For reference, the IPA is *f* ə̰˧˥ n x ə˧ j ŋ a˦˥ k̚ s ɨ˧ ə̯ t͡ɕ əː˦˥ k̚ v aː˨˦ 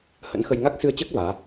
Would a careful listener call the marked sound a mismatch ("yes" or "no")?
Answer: yes